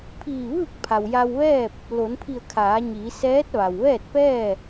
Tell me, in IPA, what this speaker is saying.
pʰ iː˧˩ ʋ ɯː˥˨ k̚ pʰ a˩ w j a˧ w ʋ ɛː˥˨ p̚ | l o˩˧ n pʰ i˧˩ ə̯ kʰ aː˩˧ ɲ iː˩˧ s ɛː˧˥ t̚ ʋ a˩ w ʋ ɛː˥˨ t̚ p ɛː˥˨

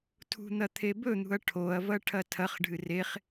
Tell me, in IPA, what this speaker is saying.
tʰ ṳ n̪ ɐ t̪ʰ e b ɵ n̪ ṳ ɐ̯ ʈʰ o ɐ̯ v ɐ ʈʰ ɐ tʰ ɐ χ ɖʱ ɨ r e χ

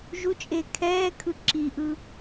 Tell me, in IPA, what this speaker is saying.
ʒ u t͡ʃʼ eː kʰ ɛː kʰ ɯ ǁ i ʔ ɯ

